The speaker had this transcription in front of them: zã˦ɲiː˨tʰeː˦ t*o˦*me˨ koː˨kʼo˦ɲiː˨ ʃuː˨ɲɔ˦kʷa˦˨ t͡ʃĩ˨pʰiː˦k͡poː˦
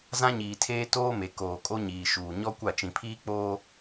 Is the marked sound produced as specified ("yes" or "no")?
no